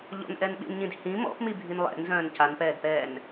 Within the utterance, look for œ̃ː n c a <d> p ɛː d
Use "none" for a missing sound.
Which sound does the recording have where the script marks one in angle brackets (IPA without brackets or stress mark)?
n